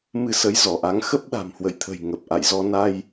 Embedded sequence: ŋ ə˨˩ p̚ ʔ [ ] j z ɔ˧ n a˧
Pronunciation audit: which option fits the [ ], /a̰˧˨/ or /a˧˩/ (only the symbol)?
a̰˧˨